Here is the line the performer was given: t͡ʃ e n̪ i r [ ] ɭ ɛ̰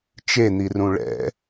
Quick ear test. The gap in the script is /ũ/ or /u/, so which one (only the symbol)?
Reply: ũ